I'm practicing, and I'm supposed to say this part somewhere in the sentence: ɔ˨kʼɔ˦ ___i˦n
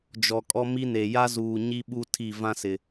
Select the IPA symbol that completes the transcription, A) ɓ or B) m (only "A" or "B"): B